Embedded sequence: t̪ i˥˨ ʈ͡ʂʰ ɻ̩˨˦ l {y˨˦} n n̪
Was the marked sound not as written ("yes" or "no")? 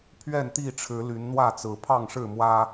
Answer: no